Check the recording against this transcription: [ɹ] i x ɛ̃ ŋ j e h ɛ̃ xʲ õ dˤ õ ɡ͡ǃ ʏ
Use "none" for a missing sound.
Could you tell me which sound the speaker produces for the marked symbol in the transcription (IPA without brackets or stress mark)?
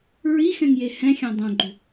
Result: ɹ